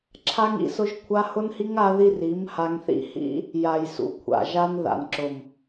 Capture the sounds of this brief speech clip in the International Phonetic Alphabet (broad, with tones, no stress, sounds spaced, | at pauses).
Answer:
ǁʰ a˦ ŋ ḭ˦˨ s ʊ˦ ʒ kʷʰ a˦ h ʊ˦ n h i˦ ŋ a˦ ð i˦ r i˨˦ m h a˧ ŋ θ ḭ˦ h ḭ˦ | j a˨ j s ṵ˨ kʷʰ a̰˨ ʒ a˧ n ð a̰˨ n ǁ ʊ˨ m